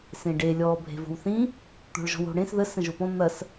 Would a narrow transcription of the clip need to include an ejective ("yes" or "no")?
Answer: no